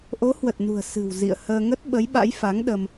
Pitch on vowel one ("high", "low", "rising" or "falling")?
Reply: rising